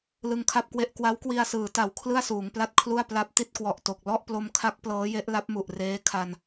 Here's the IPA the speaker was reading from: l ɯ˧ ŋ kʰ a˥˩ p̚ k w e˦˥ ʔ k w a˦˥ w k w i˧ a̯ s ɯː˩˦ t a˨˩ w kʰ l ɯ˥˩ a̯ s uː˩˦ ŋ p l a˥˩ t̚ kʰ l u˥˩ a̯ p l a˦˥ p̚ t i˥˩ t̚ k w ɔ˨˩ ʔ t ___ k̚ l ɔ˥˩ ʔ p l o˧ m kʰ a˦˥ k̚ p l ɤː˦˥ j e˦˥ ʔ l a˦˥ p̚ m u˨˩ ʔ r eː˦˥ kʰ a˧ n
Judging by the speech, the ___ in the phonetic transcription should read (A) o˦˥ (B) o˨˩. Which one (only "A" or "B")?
B